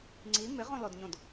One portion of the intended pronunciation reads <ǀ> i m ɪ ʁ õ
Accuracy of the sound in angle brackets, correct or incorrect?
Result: incorrect: ŋ͡ǀ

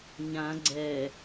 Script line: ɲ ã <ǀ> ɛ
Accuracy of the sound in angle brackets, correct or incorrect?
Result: incorrect: ɡ͡ǀ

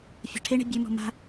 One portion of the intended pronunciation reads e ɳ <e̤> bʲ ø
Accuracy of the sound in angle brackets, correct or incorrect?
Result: correct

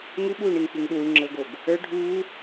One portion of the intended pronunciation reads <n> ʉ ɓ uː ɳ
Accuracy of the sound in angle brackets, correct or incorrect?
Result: incorrect: ŋ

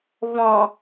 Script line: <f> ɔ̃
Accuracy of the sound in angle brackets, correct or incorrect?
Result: incorrect: v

